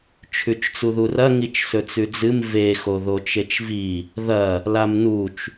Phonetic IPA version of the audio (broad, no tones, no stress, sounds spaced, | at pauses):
t͡ʃʰ ʉ t͡ʃ t͡s u ð u r ɐ ŋ i t͡ʃ s ɵ t͡s ʉ d͡z ɨ m v e x o ð o t͡ʃ e t͡ʃ v i | ð ɐ | l a m n u t͡ʃ